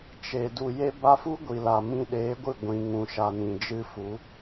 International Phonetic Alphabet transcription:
t͡ʃe˨ du˨je˧ba˧fu˦ ɡʷi˨la˨ mĩ˧ɗeː˨˦ɡʷɨ˦˨ ɡʷĩ˨ŋũ˨ ʃa˨nĩ˨ d͡ʒɨ˦fu˨˦

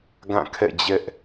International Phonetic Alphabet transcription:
ɡã˦˨kʰɛ̰˦˨d͡ʑɛ˦ʔ

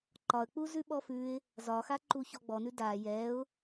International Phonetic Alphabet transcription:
ǃɒə̯k͡pu zʉɓɔfʉɪ̯ | zɒxa ǃuçɔɡ͡bɔnʉ da jɛʊ̯

